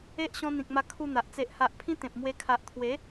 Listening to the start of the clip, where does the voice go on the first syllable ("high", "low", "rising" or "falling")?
high